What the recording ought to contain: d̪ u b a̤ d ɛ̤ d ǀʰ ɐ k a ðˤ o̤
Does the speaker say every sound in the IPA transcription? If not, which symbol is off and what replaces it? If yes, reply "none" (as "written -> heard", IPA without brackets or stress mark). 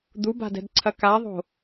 none